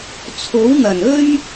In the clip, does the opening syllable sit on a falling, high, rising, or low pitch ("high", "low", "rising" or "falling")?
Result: rising